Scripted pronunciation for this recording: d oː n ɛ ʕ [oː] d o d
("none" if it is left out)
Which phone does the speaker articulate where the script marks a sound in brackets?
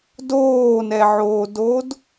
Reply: oː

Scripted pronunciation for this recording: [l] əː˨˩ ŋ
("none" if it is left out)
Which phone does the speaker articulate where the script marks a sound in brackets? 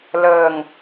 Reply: l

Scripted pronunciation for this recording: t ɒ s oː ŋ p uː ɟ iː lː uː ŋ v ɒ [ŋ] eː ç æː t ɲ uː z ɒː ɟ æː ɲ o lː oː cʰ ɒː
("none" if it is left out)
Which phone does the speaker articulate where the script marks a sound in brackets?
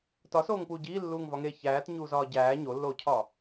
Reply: ŋ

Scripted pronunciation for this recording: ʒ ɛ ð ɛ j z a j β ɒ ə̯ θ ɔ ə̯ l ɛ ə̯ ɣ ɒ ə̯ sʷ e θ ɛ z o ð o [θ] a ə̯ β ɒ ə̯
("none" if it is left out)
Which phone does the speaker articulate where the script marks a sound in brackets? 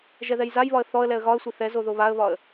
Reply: β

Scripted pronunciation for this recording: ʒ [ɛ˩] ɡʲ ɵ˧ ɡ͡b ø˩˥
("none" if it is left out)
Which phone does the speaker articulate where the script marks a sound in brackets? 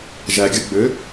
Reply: æ˩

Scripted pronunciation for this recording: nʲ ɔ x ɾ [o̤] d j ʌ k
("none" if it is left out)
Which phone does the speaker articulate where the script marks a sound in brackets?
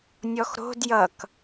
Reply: o̤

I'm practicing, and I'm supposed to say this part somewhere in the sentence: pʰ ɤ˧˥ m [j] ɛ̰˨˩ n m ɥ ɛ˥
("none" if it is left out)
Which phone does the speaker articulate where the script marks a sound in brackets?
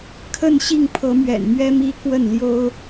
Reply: ɥ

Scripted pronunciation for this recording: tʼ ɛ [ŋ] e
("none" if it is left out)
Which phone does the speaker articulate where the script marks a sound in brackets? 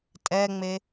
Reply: ŋ͡m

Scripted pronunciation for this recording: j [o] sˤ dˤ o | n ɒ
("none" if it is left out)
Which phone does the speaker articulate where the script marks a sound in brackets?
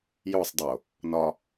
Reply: o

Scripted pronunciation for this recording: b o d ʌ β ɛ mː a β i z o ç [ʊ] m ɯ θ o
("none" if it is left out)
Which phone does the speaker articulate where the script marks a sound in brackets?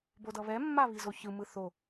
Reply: ɯ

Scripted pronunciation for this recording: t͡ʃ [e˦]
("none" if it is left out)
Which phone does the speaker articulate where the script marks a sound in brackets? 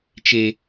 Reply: e˦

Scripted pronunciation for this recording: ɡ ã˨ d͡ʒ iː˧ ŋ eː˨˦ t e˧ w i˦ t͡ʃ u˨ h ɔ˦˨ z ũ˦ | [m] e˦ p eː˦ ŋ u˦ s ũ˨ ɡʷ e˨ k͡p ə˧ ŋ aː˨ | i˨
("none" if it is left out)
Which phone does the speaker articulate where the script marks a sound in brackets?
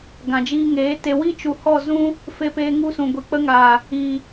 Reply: f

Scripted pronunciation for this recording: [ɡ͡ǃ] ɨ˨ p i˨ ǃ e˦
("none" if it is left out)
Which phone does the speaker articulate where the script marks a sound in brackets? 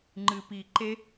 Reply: ŋ͡ǃ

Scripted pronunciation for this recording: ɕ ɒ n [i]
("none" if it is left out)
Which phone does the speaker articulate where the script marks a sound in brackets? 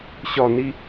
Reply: i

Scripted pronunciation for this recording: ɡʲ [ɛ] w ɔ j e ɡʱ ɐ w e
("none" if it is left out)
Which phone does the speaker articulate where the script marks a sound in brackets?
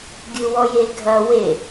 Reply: ɨ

